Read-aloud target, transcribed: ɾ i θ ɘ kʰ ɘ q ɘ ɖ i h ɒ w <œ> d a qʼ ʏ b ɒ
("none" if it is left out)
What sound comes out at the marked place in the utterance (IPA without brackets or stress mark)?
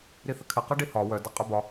œ